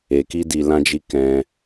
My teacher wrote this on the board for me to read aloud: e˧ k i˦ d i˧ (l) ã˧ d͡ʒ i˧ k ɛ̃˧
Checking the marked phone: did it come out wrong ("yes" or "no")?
no